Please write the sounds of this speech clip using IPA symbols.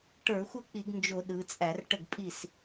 ʈ ə˞˧˩˧ xʷ ə˥˩ k͡p i˧˩˧ ɡ n d͡ʒ o˧˩˧ ɗ ɯ˩˧ t͡sʼ æ˧˩˧ r ʈ ə˥˩ ɡ pʼ i˥˩ s

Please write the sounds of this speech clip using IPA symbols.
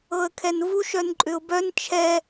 ɤ ə̯ kʰ ɛ n v u ʃ œ n ǃʼ ʏ ʊ̯ b œ n t͡ʃʰ ɛ

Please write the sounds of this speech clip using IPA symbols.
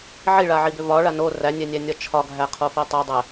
ʕ i ɭ a ʕ i b ʏ v ɒ ɭ a n o r æ nʲ ɛ nʲ æ nʲ ɒ t͡ʃʰ ɒ ɡʱ æ qʰ o f i tˤ o dˤ ɛ

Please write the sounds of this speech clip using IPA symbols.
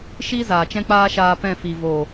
ʃ i˦ z aː˨ t͡ʃ ɛ̃˦ k͡p aː˦ ʃ aː˧ p ɛ̃˦˨ f i˨ v o˨

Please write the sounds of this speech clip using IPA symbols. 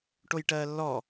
ʈ o j ʈ ɜː lː ɔ

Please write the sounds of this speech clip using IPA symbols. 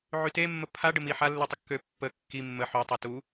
ʕ y t e mː ə pʰ a ɖ ə m i ħ a lː u tˤ ə kː ø pː ə kː i mː ə ħ ø tˤ ɛ t u

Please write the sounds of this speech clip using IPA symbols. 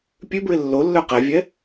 pʲ ʉ b ɹ ɪ lː o lː œ q ɛ vʲ ɛ

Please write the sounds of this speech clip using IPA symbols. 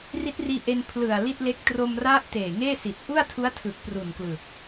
r i˦˥ t̚ r iː˧ ʔ e˧ n pʰ l ɯ˨˩ a̯ l i˥˩ t̚ l e˦˥ k̚ t r o˧ m r a˦˥ ʔ t eː˨˩ ŋ eː˥˩ s i˨˩ t̚ ʔ u˥˩ a̯ tʰ u˦˥ a̯ tʰ ɯ˨˩ k̚ p r u˨˩ n k l ɯ˨˩ k̚

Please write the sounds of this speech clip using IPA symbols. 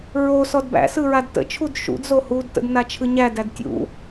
ɹ o s ɔ d b æ̰ s ɯ ɹ a d t ə̰ t͡ʃʰ u d ʃ ṵ d z o h u d t ə̰ d n a t͡ʃʰ ɯ ɲ æ d æ d tʲ ṵ

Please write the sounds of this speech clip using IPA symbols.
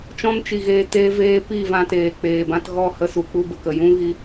t͡ʃ ɔ̃˦ n t͡ʃ i˨ ɣ eː˧ t eː˦ v eː˦ p iː˦˨ v ã˧ t eː˨ k͡p eː˨ b ã˧ t ɣ ɔ˦˨ h ə˧ s u˨ k͡p u˧ b ə˨ k ə˨ j ũ˦ ɣ i˦

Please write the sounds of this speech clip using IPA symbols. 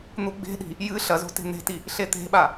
n̪ u ɡ͡b e̤ ɗ i̤ | j ɨ ɬ ɐ z o̤ t e̤ n̪ e̤ t i | ɬ e t̪ e̤ ɓ a

